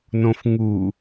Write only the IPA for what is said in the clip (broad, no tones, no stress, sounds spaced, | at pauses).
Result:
n õ f ŋ u